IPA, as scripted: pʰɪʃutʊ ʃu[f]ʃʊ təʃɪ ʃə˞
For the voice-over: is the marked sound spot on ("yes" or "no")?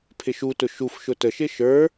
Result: yes